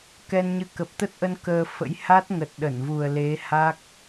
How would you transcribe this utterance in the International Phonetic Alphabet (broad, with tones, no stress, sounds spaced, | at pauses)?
k ɛ˧ n ɲ ɨ˧ k ə˨˩ p̚ t̪ ə˦˥ t̚ ʔ ə˧ n k əː˧ f ə̰˧˥ j h a˦˥ t̚ ŋ ə˨˩ t̚ ɗ ə˧˩ n v u˨˩ ə̯ l e˨˦ h a˦˥ k̚